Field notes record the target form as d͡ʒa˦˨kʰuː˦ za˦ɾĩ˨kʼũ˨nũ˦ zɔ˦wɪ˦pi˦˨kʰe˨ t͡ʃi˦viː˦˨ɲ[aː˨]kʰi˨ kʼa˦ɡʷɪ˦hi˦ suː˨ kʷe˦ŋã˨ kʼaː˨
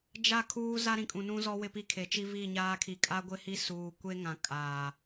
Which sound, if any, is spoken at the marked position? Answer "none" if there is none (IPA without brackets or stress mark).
aː˦